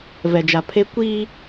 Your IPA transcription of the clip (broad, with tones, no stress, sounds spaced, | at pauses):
v ɛ˨ d͡ʒ a˨ pʰ e˦ kʷ i˦